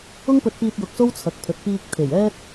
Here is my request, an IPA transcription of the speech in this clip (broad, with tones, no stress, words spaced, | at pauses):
ʊ˥ŋpɵ˧t̚piː˧t̚ jʊ˧k̚so˥w t͡sʰɐ˨˥k̚pʰɵ˨t̚ piː˧k̚ t̪ʰe˨˩jɛː˥t̚